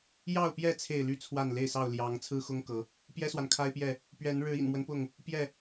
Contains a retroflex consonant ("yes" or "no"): yes